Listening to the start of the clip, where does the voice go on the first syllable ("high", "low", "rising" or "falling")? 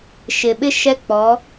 low